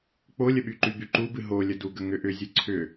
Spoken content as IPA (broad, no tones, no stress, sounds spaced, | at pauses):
k͡p o lʲ ə ɓ y ǃ y b y ǃ u b ɨ ɦ o lʲ ə d u ɡ ə ŋ ʏ ʔ ʏ zʲ ɨ ǀʰ ʏ